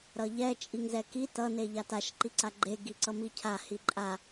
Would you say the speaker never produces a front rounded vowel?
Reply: yes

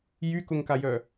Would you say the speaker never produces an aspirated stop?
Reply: yes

